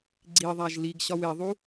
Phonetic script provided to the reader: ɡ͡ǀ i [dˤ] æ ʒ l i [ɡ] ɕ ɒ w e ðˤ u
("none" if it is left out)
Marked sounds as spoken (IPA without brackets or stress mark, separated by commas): ðˤ, ɡ